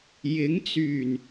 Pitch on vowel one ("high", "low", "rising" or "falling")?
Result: rising